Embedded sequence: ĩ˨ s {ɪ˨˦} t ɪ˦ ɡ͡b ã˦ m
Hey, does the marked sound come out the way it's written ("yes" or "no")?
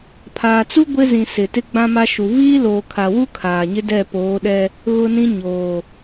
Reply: no